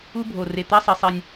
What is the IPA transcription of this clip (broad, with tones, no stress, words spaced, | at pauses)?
u˥bʱo˨˩re˨˩t̪æ˥ sˤe˨˩sˤi˨˩nʲ